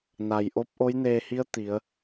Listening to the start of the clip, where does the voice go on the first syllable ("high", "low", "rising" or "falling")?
low